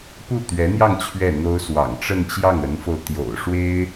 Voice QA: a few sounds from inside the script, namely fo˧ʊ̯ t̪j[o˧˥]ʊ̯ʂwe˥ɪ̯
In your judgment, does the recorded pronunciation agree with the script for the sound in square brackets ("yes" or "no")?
no